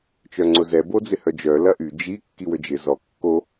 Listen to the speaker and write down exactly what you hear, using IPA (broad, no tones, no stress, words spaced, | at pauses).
t͡ʃœŋ͡ǀʊzɛ bod͡zɪhœd͡ʒœ lɐʔy d͡ʒi kːiwød͡ʒɪ zɔ kːo